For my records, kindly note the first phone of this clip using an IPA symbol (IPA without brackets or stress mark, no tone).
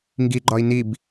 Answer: ŋ